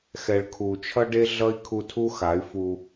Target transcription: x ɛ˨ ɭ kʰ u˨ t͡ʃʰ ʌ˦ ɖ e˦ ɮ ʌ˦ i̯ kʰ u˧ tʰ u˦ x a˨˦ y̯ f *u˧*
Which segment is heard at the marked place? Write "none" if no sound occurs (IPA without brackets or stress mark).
u˧